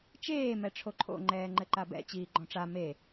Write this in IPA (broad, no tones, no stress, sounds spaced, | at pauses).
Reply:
t͡ʃ eː m ɛ ʈ͡ʂʰ o ǃʰ o̰ ŋ͡ǃ ɛː ŋ͡ǃ ɘ ǃ a b ɛ̰ t͡ɕ iː ɡ͡ǃ ɔ̃ ʈ͡ʂ a m e